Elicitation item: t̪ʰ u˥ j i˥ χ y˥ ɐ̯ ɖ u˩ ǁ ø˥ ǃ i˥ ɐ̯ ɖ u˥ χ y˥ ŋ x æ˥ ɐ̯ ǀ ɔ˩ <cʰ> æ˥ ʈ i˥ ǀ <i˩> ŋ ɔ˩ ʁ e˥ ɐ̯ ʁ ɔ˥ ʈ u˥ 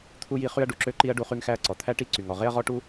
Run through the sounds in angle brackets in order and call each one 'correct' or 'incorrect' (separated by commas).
incorrect, incorrect